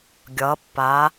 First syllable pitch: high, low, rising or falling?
rising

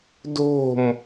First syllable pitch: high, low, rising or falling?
falling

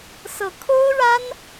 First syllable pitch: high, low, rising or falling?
rising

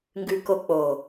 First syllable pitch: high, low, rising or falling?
low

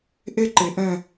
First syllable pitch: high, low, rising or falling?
high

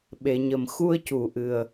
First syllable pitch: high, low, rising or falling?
low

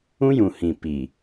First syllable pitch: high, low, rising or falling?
high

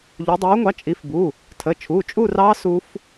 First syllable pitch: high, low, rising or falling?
rising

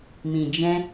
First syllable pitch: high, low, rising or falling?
low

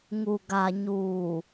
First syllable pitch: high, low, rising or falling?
low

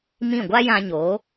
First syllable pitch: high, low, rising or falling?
falling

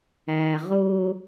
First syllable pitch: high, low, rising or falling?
low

